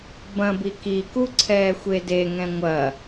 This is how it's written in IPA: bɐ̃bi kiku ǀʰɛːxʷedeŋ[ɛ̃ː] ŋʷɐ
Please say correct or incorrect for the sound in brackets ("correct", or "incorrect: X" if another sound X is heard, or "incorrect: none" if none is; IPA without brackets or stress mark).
incorrect: ɛ̃